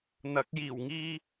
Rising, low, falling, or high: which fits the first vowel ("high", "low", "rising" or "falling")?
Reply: rising